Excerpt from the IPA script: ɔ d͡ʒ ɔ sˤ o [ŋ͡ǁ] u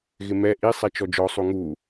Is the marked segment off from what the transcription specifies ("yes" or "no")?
yes